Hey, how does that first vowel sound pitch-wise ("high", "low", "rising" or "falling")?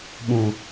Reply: low